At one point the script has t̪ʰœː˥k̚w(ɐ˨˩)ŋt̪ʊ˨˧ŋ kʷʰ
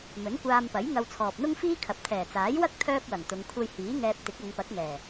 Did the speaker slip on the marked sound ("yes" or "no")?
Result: no